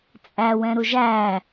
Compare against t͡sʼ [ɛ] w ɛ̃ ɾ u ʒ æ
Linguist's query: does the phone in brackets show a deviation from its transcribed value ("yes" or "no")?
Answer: yes